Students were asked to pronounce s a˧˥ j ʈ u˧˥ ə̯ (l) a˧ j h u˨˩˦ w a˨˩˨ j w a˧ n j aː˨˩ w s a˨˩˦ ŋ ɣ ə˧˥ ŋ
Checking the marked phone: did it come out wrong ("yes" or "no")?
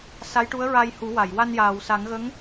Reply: yes